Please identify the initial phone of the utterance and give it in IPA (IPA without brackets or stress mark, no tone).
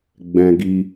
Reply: ɡ͡b